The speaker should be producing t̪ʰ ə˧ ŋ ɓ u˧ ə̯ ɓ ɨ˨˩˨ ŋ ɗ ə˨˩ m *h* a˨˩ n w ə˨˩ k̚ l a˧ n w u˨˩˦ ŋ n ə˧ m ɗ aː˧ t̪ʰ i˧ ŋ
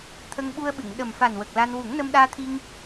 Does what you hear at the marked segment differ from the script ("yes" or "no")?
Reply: yes